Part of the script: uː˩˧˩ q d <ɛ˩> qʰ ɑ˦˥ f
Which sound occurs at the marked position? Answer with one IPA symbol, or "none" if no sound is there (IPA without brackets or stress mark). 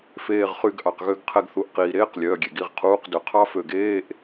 ø˩